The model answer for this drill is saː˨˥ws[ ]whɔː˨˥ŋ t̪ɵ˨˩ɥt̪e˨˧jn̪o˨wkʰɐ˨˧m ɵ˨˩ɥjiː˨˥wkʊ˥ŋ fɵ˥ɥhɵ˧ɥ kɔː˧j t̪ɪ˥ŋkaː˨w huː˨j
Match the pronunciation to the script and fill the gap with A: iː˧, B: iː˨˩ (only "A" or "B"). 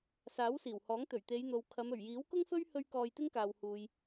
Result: B